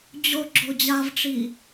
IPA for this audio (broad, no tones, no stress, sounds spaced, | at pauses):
d͡ʑ o ɡ͡ǁ o d͡ʑ a v ʈ͡ʂ i